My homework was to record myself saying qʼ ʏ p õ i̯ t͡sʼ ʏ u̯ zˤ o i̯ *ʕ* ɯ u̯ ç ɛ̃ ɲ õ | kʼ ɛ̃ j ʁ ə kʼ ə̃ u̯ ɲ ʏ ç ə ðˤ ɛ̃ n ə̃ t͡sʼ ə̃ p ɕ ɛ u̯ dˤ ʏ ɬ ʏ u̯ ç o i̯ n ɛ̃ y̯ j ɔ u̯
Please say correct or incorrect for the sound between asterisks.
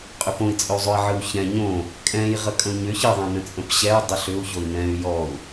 correct